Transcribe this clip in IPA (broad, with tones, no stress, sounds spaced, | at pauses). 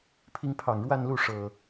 pʰ i˨˦ ŋ pʰ ɑ˨˩ ŋ ɻ w a˥˨ n l u˥˨ ʂ ɤ˨˩